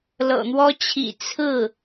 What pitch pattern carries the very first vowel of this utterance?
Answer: low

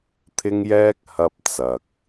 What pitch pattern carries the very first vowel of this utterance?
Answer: high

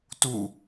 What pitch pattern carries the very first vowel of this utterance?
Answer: falling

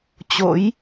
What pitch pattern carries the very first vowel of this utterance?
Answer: rising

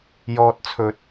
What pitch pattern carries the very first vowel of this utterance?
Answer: low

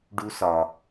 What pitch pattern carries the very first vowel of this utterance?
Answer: high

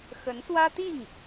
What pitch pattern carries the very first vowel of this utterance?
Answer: rising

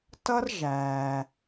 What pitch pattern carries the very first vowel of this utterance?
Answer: high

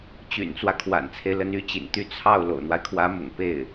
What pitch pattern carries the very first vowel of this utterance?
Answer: low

